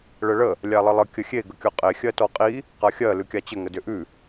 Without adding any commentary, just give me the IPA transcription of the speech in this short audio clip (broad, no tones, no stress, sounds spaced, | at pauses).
ɭ ə ɭ ə | lʲ a lˠ ə lˠ ə kʲ ə xʲ e ɡ ə kʲ ɔ qʼ e xʲ ɜ t ɔ qʼ i | q a xʲ ɜ l ʉ kʲ a t͡ɕ ə ŋ ə d ʏ ʔ ʉ